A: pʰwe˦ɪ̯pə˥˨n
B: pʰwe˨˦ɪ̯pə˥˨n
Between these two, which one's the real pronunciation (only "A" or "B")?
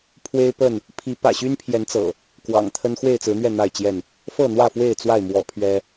A